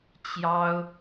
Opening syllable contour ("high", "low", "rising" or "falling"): high